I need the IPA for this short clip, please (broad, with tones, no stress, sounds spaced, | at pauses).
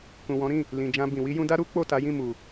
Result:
k ũ˨ w ɔ̃˨˦ ɾ ĩ˦˨ | l ĩ˨ d͡ʒ ã˧ b ĩ˨ w i˧ j ũ˧ d a˦ ɾ u˦ k͡p o˦˨ t a˨˦ j ĩ˦˨ m u˨